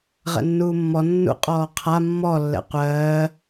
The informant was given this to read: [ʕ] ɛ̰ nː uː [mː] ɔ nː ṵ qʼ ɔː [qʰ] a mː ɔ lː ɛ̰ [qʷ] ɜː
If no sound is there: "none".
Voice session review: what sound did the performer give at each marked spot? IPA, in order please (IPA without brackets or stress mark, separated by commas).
ʁ, mː, qʰ, qʷ